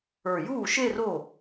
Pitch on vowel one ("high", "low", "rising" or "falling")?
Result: low